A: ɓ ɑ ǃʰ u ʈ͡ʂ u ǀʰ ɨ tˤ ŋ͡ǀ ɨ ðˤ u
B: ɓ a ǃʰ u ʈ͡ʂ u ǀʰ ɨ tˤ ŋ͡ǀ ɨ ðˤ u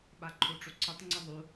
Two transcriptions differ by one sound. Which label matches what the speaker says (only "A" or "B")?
B